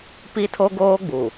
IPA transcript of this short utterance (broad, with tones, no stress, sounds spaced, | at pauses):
p i˦ tʰ o˦ ɡ oː˦ ɡ͡b u˨